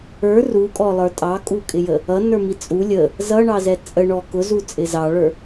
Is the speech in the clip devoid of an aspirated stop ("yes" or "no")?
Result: yes